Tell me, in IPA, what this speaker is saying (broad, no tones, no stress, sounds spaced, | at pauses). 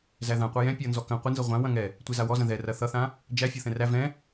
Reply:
z æ ð ã qʷ a j ɛ̃ pʲ ʌ n z ɔ k ɐ̃ qʷ ɪ n z ʌ ʁʷ ã w ɐ̃ ŋ ɛ | tʷ ɛ z a w ɔ z ɐ̃ ð ɛ r ɐ θ ʌ θ ã | d͡ʒ æ fʲ ɔ θ ɛ̃ r æ v ɛ̃